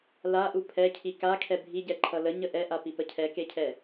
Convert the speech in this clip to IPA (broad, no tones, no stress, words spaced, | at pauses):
laʔu pʰɛcʰi kakʰɛ bʱiɟɛǃʰʌ ləɲə ʔɛʔapipə cʰɛkecʰɛ